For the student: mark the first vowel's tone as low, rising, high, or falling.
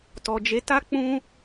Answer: low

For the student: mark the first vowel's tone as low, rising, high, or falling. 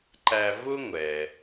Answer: low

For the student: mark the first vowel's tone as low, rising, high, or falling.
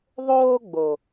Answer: high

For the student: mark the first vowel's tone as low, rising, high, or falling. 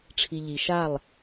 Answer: low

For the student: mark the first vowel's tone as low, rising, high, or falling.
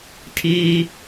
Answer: high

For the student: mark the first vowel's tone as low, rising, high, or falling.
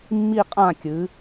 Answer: falling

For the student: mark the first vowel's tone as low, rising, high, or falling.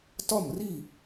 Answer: falling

